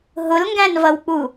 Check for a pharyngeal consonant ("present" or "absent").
absent